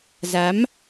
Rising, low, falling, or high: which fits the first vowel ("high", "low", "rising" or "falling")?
rising